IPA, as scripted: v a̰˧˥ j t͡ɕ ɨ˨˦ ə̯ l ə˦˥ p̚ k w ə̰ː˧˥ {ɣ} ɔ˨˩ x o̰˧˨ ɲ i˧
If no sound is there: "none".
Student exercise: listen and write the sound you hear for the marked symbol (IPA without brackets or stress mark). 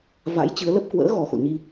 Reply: ɣ